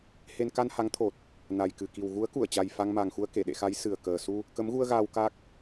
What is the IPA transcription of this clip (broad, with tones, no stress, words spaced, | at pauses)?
he˧n ka˧nha˨˦ŋt̪ʰo˨˩t̚ | na˨˩jkɨ˨˩ki˨˩w ɣu˨˦ə̯ku˧˩ə̯t͡ɕa˨˩j fa˧ŋma˨˩ŋxu˧ə̯ ke˧˩ɗḛ˧˨xa˨˦j sɨ˨˩ə̯kəː˨˩ su˧ | kə˨˦mɣu˧ə̯ ɣaː˧wka˦˥k̚